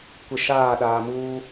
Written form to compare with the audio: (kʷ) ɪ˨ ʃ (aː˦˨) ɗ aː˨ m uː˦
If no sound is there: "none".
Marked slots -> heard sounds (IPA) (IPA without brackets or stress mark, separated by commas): kʷ, aː˦˨